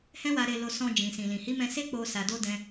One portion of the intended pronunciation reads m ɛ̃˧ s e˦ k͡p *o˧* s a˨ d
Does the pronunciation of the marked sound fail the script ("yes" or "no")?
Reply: no